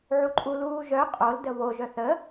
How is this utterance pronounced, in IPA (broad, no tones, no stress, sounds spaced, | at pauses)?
ʕ u ǃʼ u l uː ʒ œ qʼ o l d ə β o ʒ œ θ ə